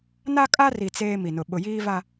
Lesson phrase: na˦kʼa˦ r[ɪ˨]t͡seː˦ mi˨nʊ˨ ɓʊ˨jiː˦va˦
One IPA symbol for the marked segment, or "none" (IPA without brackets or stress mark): i˨